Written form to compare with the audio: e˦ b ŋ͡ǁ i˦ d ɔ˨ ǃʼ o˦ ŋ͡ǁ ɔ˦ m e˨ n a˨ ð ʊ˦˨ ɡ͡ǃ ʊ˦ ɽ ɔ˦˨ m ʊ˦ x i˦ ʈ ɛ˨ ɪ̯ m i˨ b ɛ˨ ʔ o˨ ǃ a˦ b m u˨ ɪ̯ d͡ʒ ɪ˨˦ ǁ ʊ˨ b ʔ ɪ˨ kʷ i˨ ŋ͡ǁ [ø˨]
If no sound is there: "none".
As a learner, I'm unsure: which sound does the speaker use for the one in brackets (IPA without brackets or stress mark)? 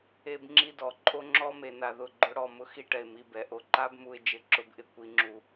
u˨